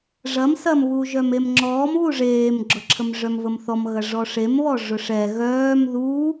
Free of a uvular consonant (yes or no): yes